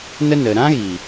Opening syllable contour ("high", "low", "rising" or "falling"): high